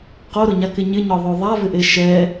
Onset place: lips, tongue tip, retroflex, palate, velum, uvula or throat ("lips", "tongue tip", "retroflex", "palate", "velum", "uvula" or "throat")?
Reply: uvula